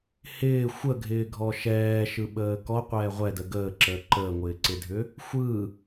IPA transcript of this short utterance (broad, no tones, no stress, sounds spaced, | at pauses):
h ɪː xʷ ə ɡʱ ɪː ɡʱ ɔ ʃ ɛː ʃ ɯ ɓ əː k ɔ qʷ ɛː ʁʷ ɛ d ə ɡ əː ǁ əː ǃ əː ŋʷ ɪː ǀ ɪ dʱ ʏ | xʷ ɯ